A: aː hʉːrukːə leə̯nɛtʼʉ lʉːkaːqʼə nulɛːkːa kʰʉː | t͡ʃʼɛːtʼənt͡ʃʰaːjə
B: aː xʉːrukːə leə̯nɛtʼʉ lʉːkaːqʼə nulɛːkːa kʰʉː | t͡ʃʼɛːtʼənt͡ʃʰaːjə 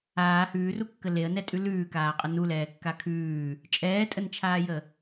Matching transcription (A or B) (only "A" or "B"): A